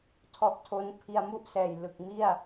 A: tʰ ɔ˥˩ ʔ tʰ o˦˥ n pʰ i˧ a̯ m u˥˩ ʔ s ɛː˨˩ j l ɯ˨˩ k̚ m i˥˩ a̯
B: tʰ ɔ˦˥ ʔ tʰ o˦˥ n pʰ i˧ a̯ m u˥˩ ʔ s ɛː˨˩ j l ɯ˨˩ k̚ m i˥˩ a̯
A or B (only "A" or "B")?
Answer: B